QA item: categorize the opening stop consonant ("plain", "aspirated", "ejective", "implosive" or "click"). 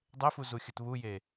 plain